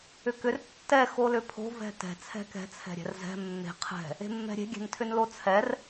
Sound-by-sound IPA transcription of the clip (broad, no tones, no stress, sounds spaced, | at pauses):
ʏ k ʏ r tː ɛ x o l ʏ pʰ o̤ v ɛ̤ t ɛ̤ t͡sʰ ɛ̤ k ɛ̤ t͡sʰ ɛ̤ ɾʲ ɛ̤ r z ɛ̤ mː e̤ qʰ ɛ̤ | e̤ mː ɛ̤ ɾʲ e̤ ɡʲ ɛ̤ n tʰ ʏ n l o t͡sʰ ɛ r